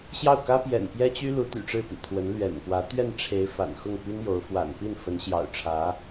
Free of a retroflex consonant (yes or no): no